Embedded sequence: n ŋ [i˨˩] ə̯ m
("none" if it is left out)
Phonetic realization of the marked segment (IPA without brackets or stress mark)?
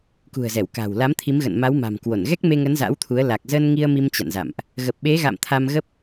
i˧